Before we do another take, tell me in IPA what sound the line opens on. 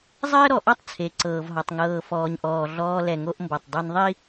zˤ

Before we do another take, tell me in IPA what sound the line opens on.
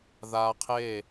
ð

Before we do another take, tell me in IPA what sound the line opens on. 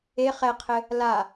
e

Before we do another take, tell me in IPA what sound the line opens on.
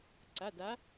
ǀ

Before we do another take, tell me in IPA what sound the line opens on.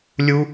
lʲ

